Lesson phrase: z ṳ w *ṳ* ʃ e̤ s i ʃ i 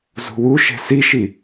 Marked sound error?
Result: yes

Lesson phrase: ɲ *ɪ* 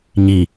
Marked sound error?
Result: yes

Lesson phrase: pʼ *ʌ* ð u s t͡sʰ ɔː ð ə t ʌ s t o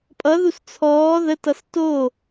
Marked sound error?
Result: no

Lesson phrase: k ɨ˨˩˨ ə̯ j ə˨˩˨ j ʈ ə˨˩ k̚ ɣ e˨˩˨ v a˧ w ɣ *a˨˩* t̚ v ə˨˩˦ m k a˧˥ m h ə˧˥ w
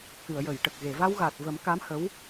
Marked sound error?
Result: no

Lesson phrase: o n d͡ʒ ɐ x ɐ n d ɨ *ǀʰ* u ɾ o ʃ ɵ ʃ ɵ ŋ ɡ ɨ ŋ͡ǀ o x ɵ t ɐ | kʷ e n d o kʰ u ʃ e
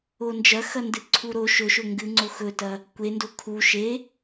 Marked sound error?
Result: no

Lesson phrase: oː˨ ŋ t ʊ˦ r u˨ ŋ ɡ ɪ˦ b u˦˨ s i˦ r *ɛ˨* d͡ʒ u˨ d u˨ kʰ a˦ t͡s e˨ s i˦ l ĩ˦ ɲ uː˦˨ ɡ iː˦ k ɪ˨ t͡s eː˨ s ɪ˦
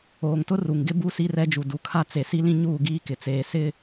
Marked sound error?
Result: yes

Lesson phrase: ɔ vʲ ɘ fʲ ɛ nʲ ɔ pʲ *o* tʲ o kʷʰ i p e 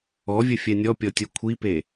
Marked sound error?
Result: yes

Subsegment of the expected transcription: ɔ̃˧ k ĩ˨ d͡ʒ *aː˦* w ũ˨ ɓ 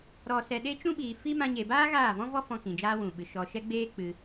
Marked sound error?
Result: no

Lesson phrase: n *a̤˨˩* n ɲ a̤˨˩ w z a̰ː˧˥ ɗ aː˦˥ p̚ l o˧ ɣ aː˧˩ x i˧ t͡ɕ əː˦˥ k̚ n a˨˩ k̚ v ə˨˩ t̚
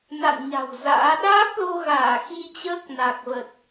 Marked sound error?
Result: yes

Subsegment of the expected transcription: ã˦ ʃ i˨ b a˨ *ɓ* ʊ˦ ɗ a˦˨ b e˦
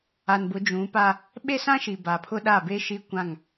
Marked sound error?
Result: yes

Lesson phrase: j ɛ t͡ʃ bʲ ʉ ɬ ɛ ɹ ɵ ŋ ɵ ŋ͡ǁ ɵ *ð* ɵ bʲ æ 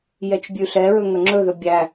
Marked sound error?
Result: no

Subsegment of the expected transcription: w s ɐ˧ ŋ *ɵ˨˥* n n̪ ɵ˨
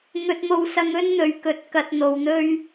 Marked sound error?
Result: yes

